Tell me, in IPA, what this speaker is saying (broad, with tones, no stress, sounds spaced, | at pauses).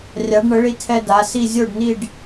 rʲ a˩˧ ɖ ɳ ə˩˧ ɭ i˧ tʰ ɛ˧ d a˩˧ s i˥˧ zʲ o˥˧ ɖ n i˥˧ ɖ